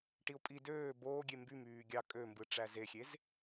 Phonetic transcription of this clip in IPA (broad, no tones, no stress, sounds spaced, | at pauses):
ʈ i ʊ̯ pʼ i d øː b oː ɡʲ e m b y m yː ɡʲ ɑ kʼ ø m b ɯ ʈ͡ʂ æ z e xʲ e z